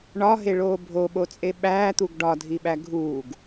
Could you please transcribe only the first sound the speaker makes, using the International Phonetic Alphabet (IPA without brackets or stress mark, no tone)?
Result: ɳ